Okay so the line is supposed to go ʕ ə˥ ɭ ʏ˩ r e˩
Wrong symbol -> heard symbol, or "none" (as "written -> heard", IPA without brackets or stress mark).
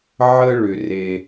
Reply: none